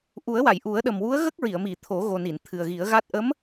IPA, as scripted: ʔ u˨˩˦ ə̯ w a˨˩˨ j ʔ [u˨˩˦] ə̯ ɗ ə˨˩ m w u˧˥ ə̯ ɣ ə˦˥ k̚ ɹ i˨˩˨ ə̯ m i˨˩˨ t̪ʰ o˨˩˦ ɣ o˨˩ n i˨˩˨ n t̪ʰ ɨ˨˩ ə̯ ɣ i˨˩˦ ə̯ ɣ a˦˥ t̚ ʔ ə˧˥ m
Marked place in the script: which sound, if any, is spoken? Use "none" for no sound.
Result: u˨˩˦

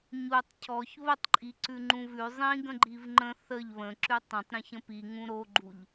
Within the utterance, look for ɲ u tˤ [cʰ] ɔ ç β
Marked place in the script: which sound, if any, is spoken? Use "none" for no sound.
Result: cʰ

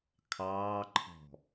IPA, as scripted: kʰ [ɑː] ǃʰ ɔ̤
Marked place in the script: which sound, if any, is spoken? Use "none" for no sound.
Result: ɑː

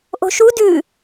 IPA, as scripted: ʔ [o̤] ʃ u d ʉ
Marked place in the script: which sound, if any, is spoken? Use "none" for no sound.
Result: o̤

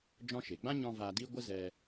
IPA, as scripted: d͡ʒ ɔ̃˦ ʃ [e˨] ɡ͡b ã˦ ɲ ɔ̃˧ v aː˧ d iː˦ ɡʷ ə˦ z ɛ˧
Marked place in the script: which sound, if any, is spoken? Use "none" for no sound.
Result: e˨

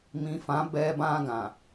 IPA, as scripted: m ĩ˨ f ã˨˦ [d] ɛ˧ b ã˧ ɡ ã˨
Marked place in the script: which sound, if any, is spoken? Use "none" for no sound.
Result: b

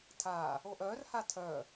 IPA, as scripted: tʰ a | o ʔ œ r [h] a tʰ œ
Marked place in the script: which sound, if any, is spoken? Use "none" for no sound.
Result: h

